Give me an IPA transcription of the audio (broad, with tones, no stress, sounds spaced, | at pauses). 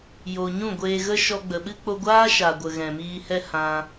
j o˧ ɲ ũ˦˨ ɡʷ eː˧ ɣ ə˦ ʃ ɔ˧ ɡ͡b ə˨ ɓ ɨ˦ k͡p o˧ ɡʷ aː˦ ʃ a˨ ɡʷ ə˨ ɣ ɛ̃˨ m iː˧ h ɛ˦ h ã˧